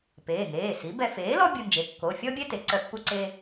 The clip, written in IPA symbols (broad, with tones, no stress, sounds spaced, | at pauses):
p eː˩˧˩ ŋ eː˩˧˩ s i˩˥ b ɛ˧ f eː˩˥ l ɔ˥ bʲ u˧ n d͡ʒ e˩˥ kː o˩˧˩ fʲ ɔ˥ bʲ ɛ˥ t e˩˥ ǀ œ˧ pː u˥ ǀ e˥